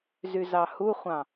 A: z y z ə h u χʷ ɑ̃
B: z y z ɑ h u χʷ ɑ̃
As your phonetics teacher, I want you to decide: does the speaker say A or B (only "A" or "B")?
B